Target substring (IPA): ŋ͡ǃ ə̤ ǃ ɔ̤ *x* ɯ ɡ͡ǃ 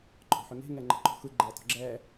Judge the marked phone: correct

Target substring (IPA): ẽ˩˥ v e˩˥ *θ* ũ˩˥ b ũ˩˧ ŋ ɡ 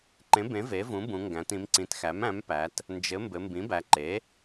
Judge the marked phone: incorrect: v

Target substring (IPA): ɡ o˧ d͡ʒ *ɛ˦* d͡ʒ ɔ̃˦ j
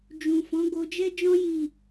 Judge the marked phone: correct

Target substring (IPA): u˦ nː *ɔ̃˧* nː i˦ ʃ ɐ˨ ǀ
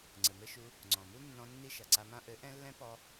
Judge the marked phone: correct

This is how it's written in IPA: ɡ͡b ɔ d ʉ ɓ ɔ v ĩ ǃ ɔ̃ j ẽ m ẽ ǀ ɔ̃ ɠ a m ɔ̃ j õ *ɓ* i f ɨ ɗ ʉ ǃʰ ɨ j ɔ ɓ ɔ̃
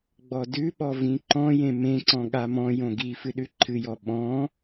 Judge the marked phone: incorrect: ɡ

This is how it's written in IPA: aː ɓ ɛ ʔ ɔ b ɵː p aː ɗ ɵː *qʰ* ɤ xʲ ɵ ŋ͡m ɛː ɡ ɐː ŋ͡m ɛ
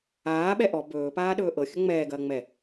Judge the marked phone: incorrect: ʔ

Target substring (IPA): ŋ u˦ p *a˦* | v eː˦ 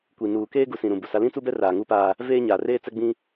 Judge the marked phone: incorrect: aː˦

